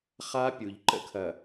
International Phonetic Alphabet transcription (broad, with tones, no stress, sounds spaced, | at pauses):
χ a˦ pʲ u˨ ʎ ǃ ə̰˦ kʰ ɐ˨